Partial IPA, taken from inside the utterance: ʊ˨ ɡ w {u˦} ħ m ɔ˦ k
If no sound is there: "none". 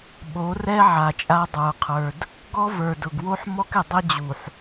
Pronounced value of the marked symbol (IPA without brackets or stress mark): o˦